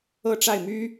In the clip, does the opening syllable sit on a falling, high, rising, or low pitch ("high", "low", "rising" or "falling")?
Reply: falling